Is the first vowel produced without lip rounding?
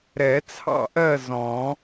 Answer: yes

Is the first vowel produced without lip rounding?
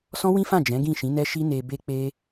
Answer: no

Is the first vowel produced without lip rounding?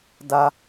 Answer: yes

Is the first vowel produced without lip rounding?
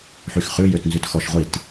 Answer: no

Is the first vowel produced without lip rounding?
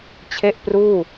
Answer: yes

